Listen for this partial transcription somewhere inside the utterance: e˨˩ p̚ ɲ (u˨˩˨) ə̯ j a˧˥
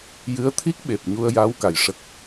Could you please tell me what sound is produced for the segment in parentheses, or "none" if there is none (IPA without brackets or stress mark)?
u˧